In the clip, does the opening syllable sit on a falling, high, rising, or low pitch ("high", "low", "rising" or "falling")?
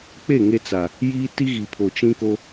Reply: falling